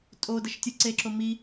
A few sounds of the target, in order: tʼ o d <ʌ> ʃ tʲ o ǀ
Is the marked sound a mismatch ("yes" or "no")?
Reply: no